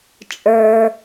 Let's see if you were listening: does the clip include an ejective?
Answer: yes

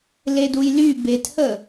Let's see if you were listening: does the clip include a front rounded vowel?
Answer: yes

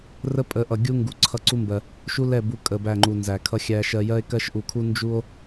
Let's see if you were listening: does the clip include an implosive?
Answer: no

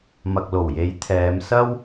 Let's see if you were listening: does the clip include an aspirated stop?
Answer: yes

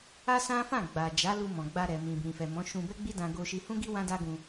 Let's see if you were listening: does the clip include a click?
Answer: no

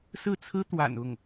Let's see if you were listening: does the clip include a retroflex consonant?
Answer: no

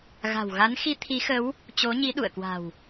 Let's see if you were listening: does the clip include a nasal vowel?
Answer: no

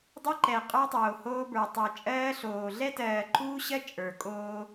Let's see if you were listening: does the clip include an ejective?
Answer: yes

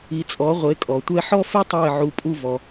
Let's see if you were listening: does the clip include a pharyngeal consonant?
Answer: yes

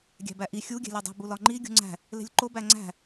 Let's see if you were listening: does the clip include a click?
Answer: yes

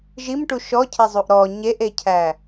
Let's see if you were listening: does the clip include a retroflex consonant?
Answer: yes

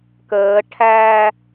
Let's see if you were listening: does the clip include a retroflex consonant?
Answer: yes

